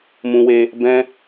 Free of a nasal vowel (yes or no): no